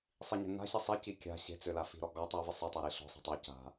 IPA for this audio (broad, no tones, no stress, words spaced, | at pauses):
sˤiɲe̤na̤ɕi sˤi cikʲa̤ ɕe̤t͡sø lafi̤ɾɔ ɡɔtˤivɪ sˤøtˤa ɾiɬɔ̤ sˤi̤tˤø ca̤